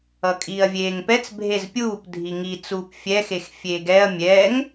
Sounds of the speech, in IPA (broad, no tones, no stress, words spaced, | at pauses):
ʌkʼiːɐ̯vʲeːŋpɛt͡s bʱezpʲuːp dʱiŋi t͡suːpfʲɛxex fʲeːɡɛɐ̯ mʲɛŋ